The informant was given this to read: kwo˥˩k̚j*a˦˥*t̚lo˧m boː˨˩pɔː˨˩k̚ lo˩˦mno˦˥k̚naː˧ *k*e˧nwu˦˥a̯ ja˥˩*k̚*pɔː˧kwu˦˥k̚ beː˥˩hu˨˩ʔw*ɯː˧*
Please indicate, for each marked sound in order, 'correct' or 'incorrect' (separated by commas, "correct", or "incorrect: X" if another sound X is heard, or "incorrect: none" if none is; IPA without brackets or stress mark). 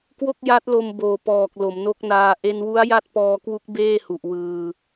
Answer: correct, incorrect: ʔ, incorrect: t̚, correct